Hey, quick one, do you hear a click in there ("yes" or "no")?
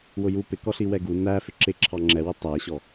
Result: yes